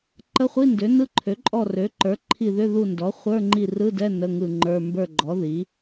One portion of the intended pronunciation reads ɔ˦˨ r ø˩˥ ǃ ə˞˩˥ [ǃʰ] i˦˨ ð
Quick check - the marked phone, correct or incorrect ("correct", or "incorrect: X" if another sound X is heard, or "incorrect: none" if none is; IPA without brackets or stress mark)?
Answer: correct